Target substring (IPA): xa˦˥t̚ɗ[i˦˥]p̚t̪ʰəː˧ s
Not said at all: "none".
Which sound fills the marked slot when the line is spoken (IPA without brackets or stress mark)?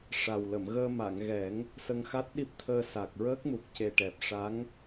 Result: i˦˥